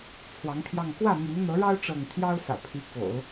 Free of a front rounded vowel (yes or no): no